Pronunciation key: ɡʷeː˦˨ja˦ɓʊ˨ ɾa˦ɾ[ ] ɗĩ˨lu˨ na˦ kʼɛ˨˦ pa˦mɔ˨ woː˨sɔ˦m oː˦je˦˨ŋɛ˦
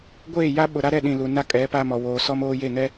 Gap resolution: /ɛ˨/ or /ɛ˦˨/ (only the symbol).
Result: ɛ˦˨